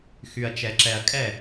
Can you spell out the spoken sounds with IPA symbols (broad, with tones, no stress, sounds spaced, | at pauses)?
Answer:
x y˨ ɐ̯ t͡ʃ ɛ˨ ǁ ɛ˨ ɐ̯ kʼ ɛ˦˨